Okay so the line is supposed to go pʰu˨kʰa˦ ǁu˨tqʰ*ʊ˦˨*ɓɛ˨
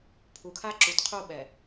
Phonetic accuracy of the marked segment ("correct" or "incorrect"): incorrect